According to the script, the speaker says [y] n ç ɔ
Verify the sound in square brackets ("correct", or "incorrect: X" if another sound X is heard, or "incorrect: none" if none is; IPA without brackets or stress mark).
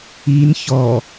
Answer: incorrect: i